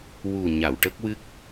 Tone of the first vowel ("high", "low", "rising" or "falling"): low